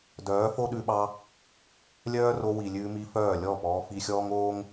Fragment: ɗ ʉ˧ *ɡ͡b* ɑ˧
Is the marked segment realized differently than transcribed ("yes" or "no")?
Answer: yes